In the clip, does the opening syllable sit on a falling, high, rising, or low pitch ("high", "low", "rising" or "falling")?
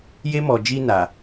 high